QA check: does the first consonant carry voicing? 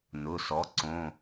yes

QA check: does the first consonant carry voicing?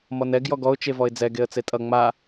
yes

